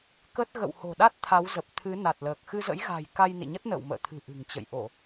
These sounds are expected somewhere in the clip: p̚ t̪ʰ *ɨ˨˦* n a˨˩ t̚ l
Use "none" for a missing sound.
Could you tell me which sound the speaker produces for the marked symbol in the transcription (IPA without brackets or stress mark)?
ɨ˨˦